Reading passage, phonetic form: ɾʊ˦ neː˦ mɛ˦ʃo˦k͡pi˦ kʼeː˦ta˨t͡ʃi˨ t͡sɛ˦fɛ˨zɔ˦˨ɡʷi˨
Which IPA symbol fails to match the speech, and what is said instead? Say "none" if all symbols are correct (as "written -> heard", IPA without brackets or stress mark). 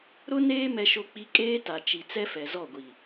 none